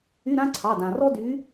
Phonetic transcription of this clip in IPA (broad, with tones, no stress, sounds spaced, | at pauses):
y˧˥˧ ɾ ã˥ ǀʰ ɑ˩˧˩ d ã˩ r ɔ˥ d y˨˥